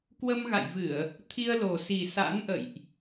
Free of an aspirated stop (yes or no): no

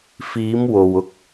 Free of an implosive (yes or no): yes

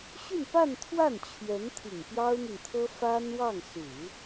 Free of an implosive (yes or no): yes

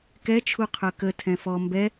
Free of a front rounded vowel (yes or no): no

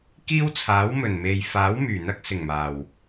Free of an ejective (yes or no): yes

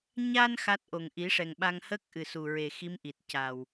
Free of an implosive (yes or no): no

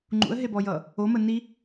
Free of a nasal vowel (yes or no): yes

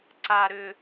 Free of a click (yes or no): no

